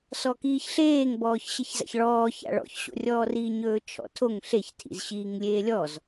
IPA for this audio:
s ɔ k iː ç ɬ eː ŋ b ɔː ç ɕ e ç z a̰ ç ɭ ɔː ç a̰ ɭ ɔ̰ ç ɕ o̰ rʲ ɔː r iː ɲ ɵː t͡ʃʰ ɔ̰ tʰ o ŋ ɬ e ç tʰ ḭ z ɕ iː ŋ lʲ eː lʲ ɔ z

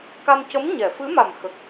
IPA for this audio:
k a˧ m c ə˧˥ m ɲ ɛ˨˩˨ f ɨ˧˥ m a˨˩ m x ə˨˩ k̚

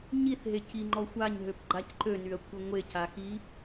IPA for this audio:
ɲ i θ ɦ e cʰ i ŋ͡ǃ ɔ xʷ a ɲ ɦ ø p ɡ͡ǃ a c ǃ ø n y ɐ̯ kʷʰ ɪ ŋʷ e cʰ a x i

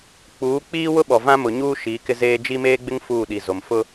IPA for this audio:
k͡p uː˨˦ k͡p iː˦ w ʊ˦ ɓ ɔ˨ v ã˦ m ʊ˨ ɲ uː˦ ʃ iː˨˦ k ɪ˦ z eː˦ d͡ʒ i˦ m eː˦ ɡ͡b ɪ˦ ŋ f uː˦˨ ɗ i˨ z o˨ m f ʊ˦

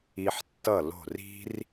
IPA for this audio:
i˧ ħ tː ʌ˦˨ l o̤˦˨ r i̤˦ r

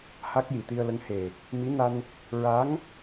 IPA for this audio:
h a˦˥ k̚ j i˨˩ t̪ i˧ ə̯ l ə˧˥ ŋ h e˨˩ | m i˧˥ n a˧ n | ɹ a˧˥ ŋ

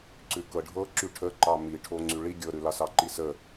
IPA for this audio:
ǀ ʉ k ɤ ɖʱ ɤ ǁ y ʈʰ ə ǃ ɑ m i ʈʰ o ŋ͡ǀ y ɭ i ɡʲ ɤ ɾ ʉ l ɑ s ɑ ǃ i s ə

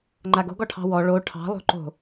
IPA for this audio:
ŋ͡ǃ a ɡ o̤ ɡ ɔ ʈʰ ɑ̤ w ɔ ɭ o ʈʰ ɑ̤ lˠ o̤ ǃ o̤

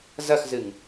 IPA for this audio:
z ɐ x z ɨ ŋ

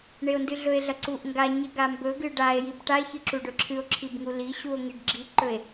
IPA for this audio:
ɳ e o̯ n d ɨ ɮ ɵ e̯ ɮ ɐ ǀ u ʔ ŋ ɡ a ɲ e ɡ a m b ɵ ɡ ɨ ɖ a e̯ j i b ʈ a e̯ ç ɨ ǁ u ɖ ɵ ǁʰ ɨ o̯ ǁʰ i b ŋ u l i ɕ u o̯ ŋ i ɖ ɡ͡ǁ i ǃ ɵ e̯

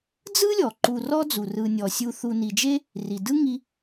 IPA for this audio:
d͡z ɯ˥ lʲ ɔ˩ ǃ u˨ r ɔ˦ d͡z u˩ r ɯ˨ nʲ ɔ˩ sʲ u˨ θ u˨ n i˩ d͡ʒ e˥ | r i˩ d ɯ˥ ŋ i˦

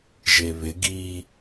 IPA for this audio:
ʒ e β ɪ ɡ i

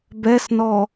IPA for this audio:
b ɛ s n ɔ

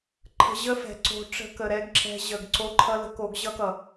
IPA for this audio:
ǃʰ ə̤˧ ʑ ə˦ f ɛ̤˨ ǀ o̤˧ ʈ͡ʂ ə̤˧ k ə˨ ɾ ɛ˦ ɡ ǁ ɛ̤˧ ʑ ə˨ ɡ ǀ o˧ ǃʰ ʌ˧ l ə̤˧ k o˧ ɡ ʑ ʌ˦ k ʌ˨

